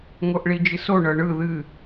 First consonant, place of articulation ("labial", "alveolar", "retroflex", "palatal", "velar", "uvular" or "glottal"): velar